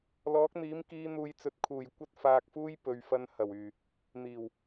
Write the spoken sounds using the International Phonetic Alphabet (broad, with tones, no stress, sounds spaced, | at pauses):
l ɔː˨˥ k̚ n̪ iː˨˥ m k iː˨˧ n̪ uː˨ j t͡s ɵ˨ t̚ kʰ uː˨˩ j kʷ ɐ˥ t̚ f aː˧ k̚ f uː˥ j p ɵ˨˧ ɥ f ɐ˧ n h ɐ˨˩ w yː˨˩ | n̪ iː˨˩ w